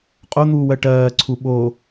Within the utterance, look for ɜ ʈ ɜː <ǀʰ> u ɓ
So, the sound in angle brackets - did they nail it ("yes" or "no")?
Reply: yes